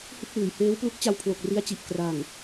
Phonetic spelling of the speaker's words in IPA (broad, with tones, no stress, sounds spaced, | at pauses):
h ɯ˥˩ k̚ w ɯː˩˦ j h eː˦˥ w p l u˦˥ k̚ t͡ɕ a˧ w pʰ l o˨˩ k̚ r i˦˥ a̯ t͡ɕ i˨˩ ʔ k r a˨˩ ŋ